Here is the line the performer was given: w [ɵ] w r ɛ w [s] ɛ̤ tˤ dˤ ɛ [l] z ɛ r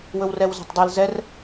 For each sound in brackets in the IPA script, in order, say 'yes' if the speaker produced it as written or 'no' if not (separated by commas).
yes, no, yes